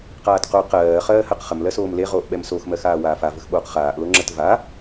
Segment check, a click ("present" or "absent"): present